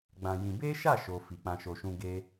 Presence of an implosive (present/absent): absent